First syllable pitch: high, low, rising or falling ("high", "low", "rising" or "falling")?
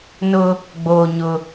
high